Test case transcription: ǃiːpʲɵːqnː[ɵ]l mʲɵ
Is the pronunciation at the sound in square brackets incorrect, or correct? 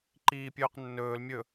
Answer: incorrect